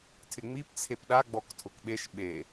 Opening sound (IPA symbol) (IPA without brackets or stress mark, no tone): tʰ